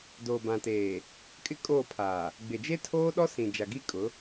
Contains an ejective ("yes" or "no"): yes